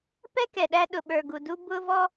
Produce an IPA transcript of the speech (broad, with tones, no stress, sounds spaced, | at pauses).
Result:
p ɛ˥ k ɛ˨ ɗ æ˥ ɗ ʊ˨ ɓ ə˞˨ ɡ u˨ d u˥ b ʊ˥ v ɔ˥